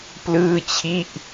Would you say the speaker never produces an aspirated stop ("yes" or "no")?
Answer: no